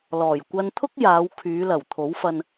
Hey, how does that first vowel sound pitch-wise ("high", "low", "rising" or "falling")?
low